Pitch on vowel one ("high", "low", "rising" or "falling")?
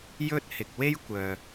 high